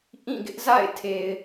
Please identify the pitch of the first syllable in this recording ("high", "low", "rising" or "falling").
falling